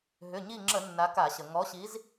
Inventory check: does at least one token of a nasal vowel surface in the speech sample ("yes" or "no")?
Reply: no